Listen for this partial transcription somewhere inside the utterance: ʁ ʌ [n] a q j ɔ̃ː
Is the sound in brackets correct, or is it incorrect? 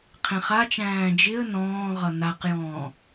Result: correct